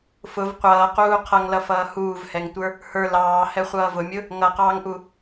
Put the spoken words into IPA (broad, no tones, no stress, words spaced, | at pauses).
fʊv qʷʌːquː qʰʌŋlʌfʌː huːvhɛŋtʷə˞ | hə˞ lɑːhɛχʷʌː vʊmʲʊ | ŋʌqɑːŋʔu